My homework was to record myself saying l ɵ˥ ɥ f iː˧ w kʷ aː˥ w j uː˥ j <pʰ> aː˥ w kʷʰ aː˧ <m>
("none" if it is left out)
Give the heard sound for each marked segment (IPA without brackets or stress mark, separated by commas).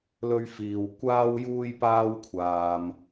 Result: p, m